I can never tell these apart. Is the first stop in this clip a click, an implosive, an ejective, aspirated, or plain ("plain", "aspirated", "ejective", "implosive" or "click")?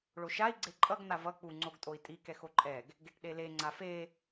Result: click